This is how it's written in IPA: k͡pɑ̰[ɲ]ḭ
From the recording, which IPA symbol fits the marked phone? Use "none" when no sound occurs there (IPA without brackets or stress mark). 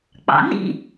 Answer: n